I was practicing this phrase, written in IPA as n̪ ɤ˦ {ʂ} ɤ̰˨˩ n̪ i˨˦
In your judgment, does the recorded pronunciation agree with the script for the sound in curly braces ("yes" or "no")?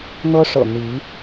yes